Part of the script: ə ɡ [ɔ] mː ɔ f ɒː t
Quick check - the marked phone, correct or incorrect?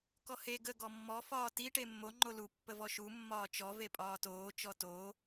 correct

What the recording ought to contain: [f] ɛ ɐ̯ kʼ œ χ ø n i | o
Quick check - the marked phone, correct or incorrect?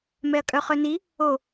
incorrect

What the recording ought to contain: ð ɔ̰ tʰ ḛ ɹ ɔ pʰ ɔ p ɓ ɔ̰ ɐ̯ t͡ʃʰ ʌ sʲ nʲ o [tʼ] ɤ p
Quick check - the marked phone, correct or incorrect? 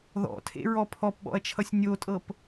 correct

